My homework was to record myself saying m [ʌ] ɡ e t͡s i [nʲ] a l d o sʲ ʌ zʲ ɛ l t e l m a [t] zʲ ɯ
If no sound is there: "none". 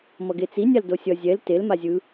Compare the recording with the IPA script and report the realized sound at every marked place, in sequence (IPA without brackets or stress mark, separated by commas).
ʌ, nʲ, none